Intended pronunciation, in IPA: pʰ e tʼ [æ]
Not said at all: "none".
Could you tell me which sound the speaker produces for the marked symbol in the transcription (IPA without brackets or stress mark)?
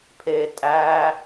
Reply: æ